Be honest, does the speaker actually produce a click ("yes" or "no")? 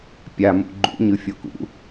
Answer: yes